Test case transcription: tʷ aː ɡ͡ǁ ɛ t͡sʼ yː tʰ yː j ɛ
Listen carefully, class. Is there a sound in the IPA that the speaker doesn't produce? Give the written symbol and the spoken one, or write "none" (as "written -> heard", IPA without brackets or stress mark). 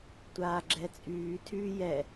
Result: none